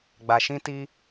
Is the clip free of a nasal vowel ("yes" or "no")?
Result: no